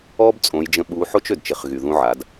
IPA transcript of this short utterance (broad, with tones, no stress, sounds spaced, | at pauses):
ɔ˥ b t͡sʼ õ˩˧ j d͡ʒ ə̃˧ ɓ u˧˥ ħ o˥ t͡ʃ ø˩ d t͡ʃ ɪ˩˧ χ ɣ y˩ ð ũ˧ ʕ a˩˧ d